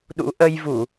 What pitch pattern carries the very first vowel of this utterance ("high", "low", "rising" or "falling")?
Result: rising